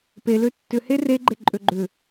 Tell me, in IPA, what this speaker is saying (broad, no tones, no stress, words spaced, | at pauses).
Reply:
pe løtːʏ here ɡ͡ǃeǃʼøɡ͡ǃʏ